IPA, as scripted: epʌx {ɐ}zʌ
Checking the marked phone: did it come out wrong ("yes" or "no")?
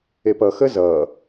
yes